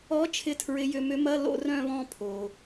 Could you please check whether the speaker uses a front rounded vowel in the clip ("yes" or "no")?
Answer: yes